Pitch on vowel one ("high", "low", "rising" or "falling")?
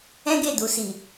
high